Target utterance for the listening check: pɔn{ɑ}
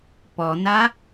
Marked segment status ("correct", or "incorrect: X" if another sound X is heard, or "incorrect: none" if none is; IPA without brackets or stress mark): incorrect: a